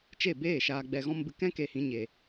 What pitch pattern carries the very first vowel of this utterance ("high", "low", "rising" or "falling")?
falling